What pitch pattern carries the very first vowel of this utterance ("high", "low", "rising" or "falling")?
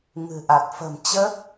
low